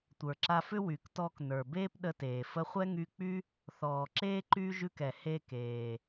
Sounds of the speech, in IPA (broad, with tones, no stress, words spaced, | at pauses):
tʷə˞˩ǁa˧fʏ˥ wy˩ktɔː˧k nə˞˩beː˥pɗə˧teː˩ fə˧ χʷɛ˥ŋy˧k͡py˥ | θɔː˩ǁeː˥ ǃyː˥ ʒʉ˧kɛ˩ he˧keː˩